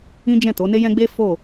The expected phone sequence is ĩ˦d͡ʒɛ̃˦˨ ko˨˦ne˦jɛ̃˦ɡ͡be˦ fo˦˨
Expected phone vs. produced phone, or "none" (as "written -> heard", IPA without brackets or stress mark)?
k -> t